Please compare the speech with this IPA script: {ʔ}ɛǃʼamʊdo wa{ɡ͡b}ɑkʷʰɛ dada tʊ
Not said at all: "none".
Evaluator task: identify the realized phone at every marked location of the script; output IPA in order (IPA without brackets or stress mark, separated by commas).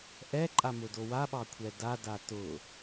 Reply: ʔ, ɓ